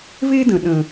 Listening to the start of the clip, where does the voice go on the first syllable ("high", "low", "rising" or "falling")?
high